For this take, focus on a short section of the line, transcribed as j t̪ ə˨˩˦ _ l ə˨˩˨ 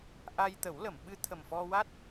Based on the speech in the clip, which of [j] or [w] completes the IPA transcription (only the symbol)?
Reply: w